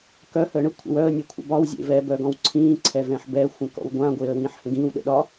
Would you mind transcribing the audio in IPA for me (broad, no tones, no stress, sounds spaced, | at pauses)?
k œ h əː ɳ ə kʷʰ ə̰ w œ ə̯ nʲ e kʷʰ ə̰ b ɒ w zʲ ḛ v ɛ b œ ɡ ɔ̃ w ǀʰ ĩː ǀʰ ɛ v ɛ̃ ħ b ɛ xʷ ə̃ k ɔ̰ w ɡʷ ã ɡʷ eː ə̯ w ĩː ħ h ə̃ ɡ ĩː w ɗ ə̰ ɗ ɒ